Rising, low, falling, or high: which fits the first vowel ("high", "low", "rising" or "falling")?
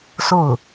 falling